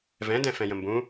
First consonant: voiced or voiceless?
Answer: voiced